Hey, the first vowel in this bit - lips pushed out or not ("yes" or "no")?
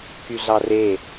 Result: yes